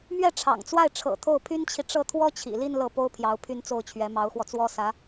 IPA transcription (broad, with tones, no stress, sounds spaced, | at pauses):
m ɥ ɛ˥˩ ʈ͡ʂʰ ɑ̰˨˩ ŋ t͡s w a˥˩ ɪ̯ ʈ͡ʂʰ ɤ̰˨˩ t̪ʰ o˥˩ ʊ̯ pʰ y˥ n t͡ɕʰ i˨ ʈ͡ʂ ɤ˥˩ t̪ʰ w ɔ˥ t͡ɕʰ ḭ˨˩ l i˥˧ n l ɤ˥˩ p o˥ ʊ̯ pʰ j ɑ˧˥ ʊ̯ pʰ y˥˧ n t͡s o˥˩ ʊ̯ t͡ɕʰ ɥ ɛ˧˥ m ɑ˧˥ ʊ̯ x w ɔ˧ t͡s w ɔ˥ s ä˧˥